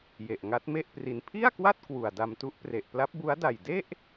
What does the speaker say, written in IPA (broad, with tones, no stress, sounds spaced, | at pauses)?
j e˨˩ ʔ ŋ a˦˥ t̚ m e˥˩ ʔ p r i˧ n pʰ i˥˩ a̯ k w a˥˩ t̚ k w u˨˩ a̯ d a˧ m t u˦˥ ʔ p r e˨˩ ʔ p l a˦˥ p̚ b u˦˥ a̯ d a˨˩ j d e˥˩ ʔ